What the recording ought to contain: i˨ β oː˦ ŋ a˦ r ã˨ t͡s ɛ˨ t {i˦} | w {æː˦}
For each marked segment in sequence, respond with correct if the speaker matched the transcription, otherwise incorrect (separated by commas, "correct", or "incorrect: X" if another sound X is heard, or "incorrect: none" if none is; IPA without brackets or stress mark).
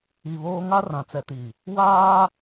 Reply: incorrect: i˨, incorrect: aː˦